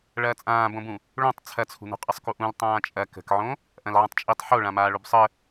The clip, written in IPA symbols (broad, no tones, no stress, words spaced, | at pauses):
ɭɐːt͡sʼãːbõbũ | ɭõtˤ t͡sʰɐt͡sʰṳnṳ qʼəsˤkuʔũl tˤãːt͡ʃʼɐ kə̤kʕõ | ʔɐ̃lʕə̃tˤt͡ʃʼitˤ ħoɭã maːɭobsˤə